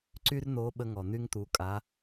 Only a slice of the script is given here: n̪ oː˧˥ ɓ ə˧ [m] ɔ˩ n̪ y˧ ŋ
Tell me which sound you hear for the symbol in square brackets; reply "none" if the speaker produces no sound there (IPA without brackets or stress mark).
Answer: ŋ